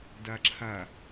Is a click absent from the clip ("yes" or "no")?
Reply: no